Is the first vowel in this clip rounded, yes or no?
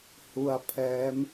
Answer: yes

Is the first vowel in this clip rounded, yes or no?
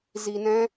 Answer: no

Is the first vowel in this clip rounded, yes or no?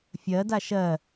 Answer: no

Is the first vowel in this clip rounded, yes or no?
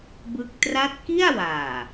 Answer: no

